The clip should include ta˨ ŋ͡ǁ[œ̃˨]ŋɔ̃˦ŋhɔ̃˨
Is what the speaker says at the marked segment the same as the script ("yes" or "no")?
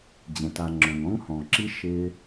yes